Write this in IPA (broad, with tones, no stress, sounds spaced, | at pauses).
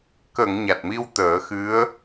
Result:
k ə˨˩˨ ŋ ɲ a˨˩ t̚ m i˧ w t̪ əː˨˩˦ x ɨ˧˥ ə̯